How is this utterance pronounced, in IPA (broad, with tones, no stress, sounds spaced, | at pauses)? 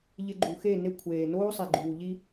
ʎ ɪ˧ ɡ͡ǃ u˨ x e˦˨ n e˧ kʷʰ eː˨ n oː˦ sˤ i˨ ɡ͡ǃ uː˨ ʎ i˧